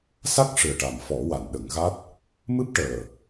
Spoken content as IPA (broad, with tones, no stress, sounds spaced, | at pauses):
s a˦˥ k̚ ʂ ɨ˨˩ ə̯ ʈ a˨˩ m f ɔ˨˩˦ w a˨˩˨ n ɗ ə˨˩˦ ŋ ɣ a˦˥ t̚ | m ɨ˦˥ p̚ ʈ əː˨˩